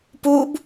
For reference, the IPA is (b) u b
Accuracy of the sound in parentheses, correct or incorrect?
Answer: incorrect